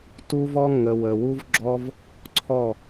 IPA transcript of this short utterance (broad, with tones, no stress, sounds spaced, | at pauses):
t u˧ v ɔ˧ ŋ ə˨ w ə˨ w u˦ v ɡ͡ǁ ɔ˦ v | ǀʰ ɔ˦˨